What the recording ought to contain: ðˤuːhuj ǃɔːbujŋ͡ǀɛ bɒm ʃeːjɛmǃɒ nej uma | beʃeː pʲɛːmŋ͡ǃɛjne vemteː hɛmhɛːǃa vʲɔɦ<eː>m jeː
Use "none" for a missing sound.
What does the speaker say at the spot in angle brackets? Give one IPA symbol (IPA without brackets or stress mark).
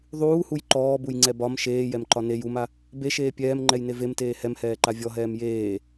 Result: ɛː